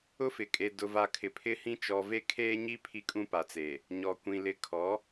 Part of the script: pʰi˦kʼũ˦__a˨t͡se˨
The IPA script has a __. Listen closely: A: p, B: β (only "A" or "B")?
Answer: A